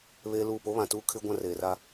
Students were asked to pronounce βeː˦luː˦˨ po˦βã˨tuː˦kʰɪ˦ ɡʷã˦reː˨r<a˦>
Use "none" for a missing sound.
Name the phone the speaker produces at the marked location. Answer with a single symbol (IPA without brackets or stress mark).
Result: a˦